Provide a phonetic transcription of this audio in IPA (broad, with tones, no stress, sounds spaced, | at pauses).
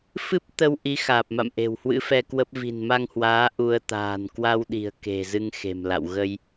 f ɨ˦˥ p̚ t̪ ə˧ w ʔ i˨˦ x aː˨˩ p̚ m a̰˧˨ m ʔ e̤˨˩ w h w ɨ̰˧˥ f ɛ˧ k w ə˦˥ p̚ v i̤˨˩ n m a˧ ŋ h w aː˨˦ ʔ u˧ ə̯ t̪ a̤ː˨˩ n k w a˧ w ɗ i̤˨˩ ə̯ k e̤˨˩ z ɨ˧ ŋ x e̤˨˩ m l a̰˧˨ w ɣ ə˧ j